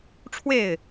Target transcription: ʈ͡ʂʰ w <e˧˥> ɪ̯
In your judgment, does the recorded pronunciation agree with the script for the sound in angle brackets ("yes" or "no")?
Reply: no